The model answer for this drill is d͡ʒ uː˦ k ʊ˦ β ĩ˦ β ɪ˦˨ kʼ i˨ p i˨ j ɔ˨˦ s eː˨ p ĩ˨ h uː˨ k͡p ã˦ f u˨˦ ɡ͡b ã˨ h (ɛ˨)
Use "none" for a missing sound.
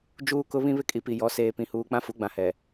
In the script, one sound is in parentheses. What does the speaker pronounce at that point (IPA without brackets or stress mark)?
ɛ˨